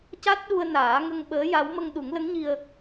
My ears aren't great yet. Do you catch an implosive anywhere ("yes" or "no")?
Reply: yes